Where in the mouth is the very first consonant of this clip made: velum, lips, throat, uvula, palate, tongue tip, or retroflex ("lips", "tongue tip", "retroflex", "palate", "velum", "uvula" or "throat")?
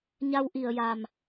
palate